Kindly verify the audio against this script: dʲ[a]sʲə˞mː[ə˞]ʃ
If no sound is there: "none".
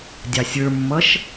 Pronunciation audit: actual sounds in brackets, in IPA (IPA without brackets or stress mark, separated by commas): ɑ, ʌ